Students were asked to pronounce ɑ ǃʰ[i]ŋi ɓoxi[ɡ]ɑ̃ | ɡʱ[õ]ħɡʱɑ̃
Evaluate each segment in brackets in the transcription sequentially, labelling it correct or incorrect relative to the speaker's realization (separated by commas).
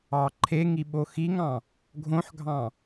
incorrect, incorrect, correct